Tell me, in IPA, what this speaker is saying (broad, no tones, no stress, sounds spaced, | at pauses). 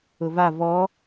ʊ v a v ɔ